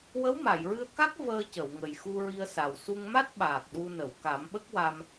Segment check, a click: absent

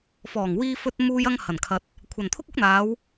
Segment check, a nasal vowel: absent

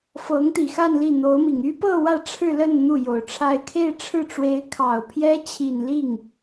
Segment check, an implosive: absent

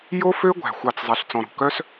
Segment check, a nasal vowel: present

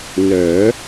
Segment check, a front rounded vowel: present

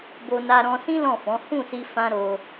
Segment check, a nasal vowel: present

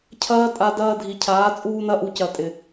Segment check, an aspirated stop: present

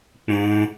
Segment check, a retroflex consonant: absent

